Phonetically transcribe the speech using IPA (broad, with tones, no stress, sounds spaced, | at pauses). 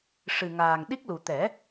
ʂ ɨ˨˩ ŋ aː˨˩ ŋ ɗ i˦˥ k̚ l u˨˩ t̪ ɛ˨˩˦